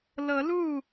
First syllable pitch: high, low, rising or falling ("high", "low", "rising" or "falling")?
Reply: rising